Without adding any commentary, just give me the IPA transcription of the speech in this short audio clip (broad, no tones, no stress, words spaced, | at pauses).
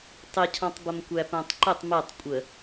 tˤɪcʰɔ̃tˤbəm kʷæpæ̃tˤǃətˤ mɛtˤ kʷʼə